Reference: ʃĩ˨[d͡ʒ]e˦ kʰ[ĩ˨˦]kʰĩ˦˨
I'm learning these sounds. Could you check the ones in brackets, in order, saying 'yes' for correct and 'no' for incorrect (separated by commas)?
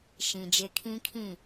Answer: yes, no